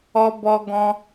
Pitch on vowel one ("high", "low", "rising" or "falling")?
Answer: high